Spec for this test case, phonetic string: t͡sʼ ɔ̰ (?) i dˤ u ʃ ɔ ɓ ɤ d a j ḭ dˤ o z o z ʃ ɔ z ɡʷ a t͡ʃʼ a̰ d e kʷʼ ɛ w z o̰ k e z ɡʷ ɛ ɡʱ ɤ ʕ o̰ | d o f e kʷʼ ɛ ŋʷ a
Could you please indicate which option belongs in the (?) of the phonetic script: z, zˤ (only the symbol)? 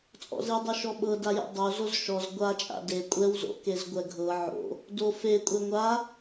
z